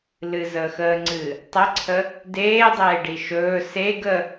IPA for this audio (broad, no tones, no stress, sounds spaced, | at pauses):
l ɨ z əː x əː ŋ͡ǀ ɨː | tˤ ə ǀʰ ə | d eː dˤ eː ɖ i ʃ ɵː s e ɡ ə